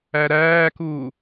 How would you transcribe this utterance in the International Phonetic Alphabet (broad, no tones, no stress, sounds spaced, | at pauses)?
æ ɾ æː k uː